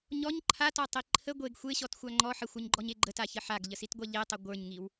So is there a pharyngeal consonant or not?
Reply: yes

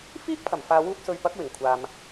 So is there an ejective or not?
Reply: no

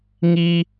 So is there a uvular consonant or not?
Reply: no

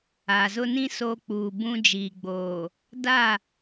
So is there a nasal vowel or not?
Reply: yes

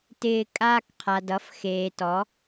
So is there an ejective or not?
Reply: yes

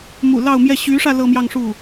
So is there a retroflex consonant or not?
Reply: yes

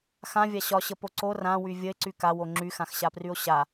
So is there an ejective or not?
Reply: no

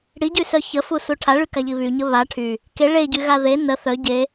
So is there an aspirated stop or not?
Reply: yes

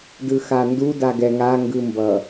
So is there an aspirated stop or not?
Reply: no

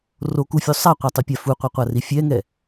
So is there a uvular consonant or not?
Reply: yes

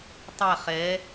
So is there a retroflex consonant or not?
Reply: no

